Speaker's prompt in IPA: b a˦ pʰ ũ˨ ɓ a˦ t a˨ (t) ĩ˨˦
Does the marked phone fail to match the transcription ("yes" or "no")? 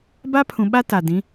yes